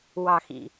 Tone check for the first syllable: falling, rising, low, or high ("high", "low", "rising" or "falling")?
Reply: low